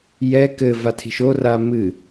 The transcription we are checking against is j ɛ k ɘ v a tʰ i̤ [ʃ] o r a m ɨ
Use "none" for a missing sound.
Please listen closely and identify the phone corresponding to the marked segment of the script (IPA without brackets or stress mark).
ʃ